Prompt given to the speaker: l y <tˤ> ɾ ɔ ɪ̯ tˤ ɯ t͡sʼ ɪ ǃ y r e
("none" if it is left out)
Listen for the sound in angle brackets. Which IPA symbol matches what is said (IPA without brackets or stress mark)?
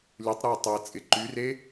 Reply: tˤ